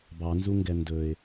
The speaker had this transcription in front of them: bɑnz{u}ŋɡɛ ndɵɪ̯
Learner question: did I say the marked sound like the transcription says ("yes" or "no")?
yes